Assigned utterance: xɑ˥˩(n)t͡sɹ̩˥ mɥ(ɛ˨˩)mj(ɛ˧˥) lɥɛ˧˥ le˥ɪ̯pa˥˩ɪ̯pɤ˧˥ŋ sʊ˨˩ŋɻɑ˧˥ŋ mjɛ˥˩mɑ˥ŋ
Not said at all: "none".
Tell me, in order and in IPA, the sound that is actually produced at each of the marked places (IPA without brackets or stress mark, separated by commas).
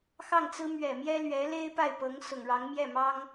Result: ŋ, ɛ˨˩, ɛ˥